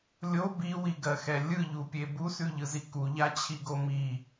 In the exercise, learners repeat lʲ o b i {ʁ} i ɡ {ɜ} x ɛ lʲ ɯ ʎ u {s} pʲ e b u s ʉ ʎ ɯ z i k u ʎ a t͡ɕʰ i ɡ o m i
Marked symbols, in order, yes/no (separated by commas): no, yes, no